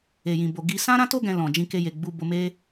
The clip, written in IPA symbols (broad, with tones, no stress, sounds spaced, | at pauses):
e˨ j ĩ˨ b o˨ ɡ i˧ s ã˦ ɾ ã˦ t o˦ ɡ ɛ̃˧ l ɔ̃˨ d͡ʒ ĩ˧ k e˧ j e˨ ɡ͡b u˧ b o˧ m e˦